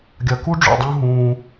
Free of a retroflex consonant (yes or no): no